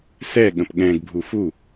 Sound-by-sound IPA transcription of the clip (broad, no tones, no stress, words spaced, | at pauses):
sɛ ɠə̃pɠɛ̃ɡbʱu fu